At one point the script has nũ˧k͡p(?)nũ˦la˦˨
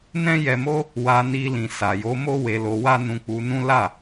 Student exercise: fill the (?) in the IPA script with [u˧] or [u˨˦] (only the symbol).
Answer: u˧